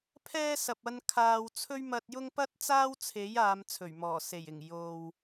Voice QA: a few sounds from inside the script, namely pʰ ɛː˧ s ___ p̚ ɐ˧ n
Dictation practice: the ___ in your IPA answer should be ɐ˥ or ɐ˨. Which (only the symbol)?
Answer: ɐ˨